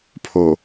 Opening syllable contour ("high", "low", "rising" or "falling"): low